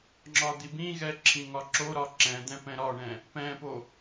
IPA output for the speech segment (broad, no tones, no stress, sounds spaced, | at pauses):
ŋ͡ǁ ɒ d̪ i b ĩ ɣ ɛ ǁʰ ĩ ŋ ɒ ǁ o ɾ ɒ ǁ ɛ̃ d̪ ɛ̃ p ɛ̃ ɾ ɒ ɳ ɛ̃ | p ɛ̃ p o